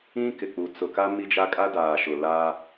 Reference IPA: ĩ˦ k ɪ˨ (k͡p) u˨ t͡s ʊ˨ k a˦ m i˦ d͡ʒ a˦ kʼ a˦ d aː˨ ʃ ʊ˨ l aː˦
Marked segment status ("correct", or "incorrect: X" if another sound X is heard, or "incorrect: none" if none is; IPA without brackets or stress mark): correct